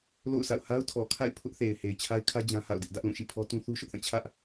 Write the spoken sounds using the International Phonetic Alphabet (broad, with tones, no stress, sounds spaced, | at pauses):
l o̰˦˨ ʊ̯ s a̰˦˨ ʊ̯ h a˦ ʊ̯ tʰ ɔ˨ kʰ a̰˦˨ ɪ̯ pʰ ʊ˦ ʔ θ e˨ ɪ̯ h e˨ ɪ̯ t͡ɕʰ a˦ ɪ̯ kʰ ä˦ d͡ʑ ã˦ h a̰˦˨ ʊ̯ d ɪ˦ ʔ d ä˦ ʔ l ũ˦˨ ʃ ḭ˦˨ pʰ ɔ˦ t ũ˦ θ u˦ ʃ ʊ˦ ʔ θ ã˦˨ t͡ɕʰ ä˦ ʔ